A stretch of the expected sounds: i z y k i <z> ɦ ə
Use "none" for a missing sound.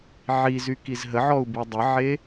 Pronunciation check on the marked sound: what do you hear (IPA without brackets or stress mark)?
z